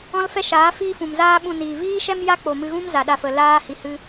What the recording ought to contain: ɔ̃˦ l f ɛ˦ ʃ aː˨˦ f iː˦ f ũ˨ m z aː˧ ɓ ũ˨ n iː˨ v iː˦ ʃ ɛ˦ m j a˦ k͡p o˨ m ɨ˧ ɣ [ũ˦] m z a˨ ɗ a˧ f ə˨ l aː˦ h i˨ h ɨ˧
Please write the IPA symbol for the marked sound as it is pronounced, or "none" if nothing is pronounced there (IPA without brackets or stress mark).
ũ˦